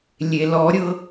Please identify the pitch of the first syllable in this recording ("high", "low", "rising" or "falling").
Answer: low